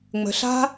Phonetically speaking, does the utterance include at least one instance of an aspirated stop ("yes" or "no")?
no